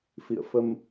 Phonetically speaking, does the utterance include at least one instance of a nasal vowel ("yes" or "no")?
no